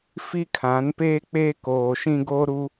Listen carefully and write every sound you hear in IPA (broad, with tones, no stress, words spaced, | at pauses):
fi˦kʰã˨˦npeː˦ k͡peː˦koː˨ʃĩ˦ ɡoː˦ɾu˦